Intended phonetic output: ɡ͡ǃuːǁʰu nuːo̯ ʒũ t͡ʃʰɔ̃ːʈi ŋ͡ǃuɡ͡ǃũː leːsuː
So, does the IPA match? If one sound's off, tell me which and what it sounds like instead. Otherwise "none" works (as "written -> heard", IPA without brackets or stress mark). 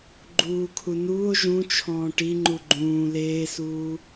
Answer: ǁʰ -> kʰ